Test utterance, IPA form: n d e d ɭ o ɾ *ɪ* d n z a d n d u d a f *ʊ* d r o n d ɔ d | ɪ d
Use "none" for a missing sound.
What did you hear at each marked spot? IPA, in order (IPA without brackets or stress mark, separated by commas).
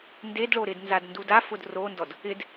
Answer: ɪ, ʊ